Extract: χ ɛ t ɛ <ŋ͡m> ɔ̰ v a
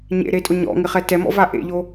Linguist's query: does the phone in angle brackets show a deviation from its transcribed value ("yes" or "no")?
yes